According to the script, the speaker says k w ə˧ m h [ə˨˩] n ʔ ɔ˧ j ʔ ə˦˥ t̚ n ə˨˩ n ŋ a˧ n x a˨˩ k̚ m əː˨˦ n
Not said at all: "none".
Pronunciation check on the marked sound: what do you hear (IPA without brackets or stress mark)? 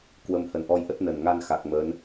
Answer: ə˨˩